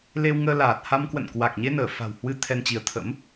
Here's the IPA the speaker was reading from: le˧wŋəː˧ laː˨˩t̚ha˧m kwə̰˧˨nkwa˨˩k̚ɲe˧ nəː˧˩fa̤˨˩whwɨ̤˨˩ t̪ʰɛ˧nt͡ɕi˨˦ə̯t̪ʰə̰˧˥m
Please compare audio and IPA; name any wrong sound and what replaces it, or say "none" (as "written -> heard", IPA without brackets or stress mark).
ɨ̤˨˩ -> ɨ˧